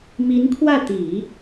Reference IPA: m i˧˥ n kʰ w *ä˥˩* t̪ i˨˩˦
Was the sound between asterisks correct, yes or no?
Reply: yes